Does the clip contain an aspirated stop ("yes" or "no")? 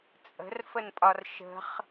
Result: no